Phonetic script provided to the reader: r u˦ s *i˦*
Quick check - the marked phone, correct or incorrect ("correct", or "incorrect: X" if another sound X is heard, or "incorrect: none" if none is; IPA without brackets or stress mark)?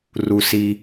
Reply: correct